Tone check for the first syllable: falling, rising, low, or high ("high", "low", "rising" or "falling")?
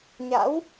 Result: rising